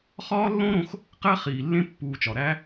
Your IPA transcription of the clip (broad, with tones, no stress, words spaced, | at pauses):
χɒː˦lːõ˦ɾõ˧x | qæ˦ χiː˨lːẽ˦ pːuː˧t͡ʃɒ˨ ɾæ˦